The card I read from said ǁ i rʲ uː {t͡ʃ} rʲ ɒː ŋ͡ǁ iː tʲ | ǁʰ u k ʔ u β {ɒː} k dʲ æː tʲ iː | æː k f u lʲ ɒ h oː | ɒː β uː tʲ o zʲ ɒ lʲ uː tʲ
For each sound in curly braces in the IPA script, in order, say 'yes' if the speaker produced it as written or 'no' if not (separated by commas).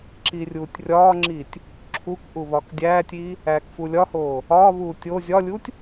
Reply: no, yes